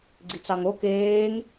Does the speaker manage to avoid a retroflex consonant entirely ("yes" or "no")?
yes